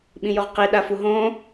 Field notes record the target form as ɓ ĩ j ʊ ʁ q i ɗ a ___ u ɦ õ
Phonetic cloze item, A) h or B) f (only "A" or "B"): B